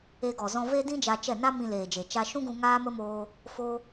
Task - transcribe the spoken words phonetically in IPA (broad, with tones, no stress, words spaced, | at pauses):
e˧ɡɔ˨zɔ̃˧ ve˦dĩ˦ d͡ʒa˧t͡ʃɛ˦˨ na˦mĩ˧leː˨d͡ʒe˨ t͡ʃa˧ʃũ˦ɡũ˧ ŋaː˦mə˦moː˧ | fo˧